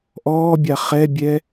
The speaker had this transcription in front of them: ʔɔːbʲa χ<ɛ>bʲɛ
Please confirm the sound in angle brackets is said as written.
yes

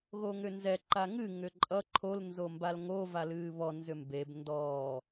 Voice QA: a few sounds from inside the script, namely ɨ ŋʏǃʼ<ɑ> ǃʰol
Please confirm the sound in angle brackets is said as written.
no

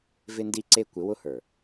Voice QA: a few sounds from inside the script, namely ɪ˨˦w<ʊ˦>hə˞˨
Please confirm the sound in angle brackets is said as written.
yes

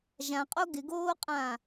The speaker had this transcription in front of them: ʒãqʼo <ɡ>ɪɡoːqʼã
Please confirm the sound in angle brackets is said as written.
yes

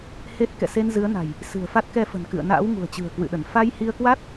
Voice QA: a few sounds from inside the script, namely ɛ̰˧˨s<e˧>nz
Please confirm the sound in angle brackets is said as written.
yes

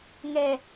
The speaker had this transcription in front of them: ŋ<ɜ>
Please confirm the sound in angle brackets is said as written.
no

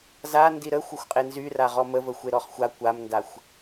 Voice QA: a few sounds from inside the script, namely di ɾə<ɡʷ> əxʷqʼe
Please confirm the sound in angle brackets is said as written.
no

